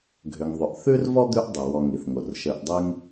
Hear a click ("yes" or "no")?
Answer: no